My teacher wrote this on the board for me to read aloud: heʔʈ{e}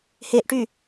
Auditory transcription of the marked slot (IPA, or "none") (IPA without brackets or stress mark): y